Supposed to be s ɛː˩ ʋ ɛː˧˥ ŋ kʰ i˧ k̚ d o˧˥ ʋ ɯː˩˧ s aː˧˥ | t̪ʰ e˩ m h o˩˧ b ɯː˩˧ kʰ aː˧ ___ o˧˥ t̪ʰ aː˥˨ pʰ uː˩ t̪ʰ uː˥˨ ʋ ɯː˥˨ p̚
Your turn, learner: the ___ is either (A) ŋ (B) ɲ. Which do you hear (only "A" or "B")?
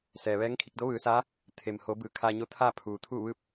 B